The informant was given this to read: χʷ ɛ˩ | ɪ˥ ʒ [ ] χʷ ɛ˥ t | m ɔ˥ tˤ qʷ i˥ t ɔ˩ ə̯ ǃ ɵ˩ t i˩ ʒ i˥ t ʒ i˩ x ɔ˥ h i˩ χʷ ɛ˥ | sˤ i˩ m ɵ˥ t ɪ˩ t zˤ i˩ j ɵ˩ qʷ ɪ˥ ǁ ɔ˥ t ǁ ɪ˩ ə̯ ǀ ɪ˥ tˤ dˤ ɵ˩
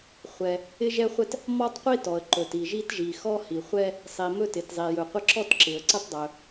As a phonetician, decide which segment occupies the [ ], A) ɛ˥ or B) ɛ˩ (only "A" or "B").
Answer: A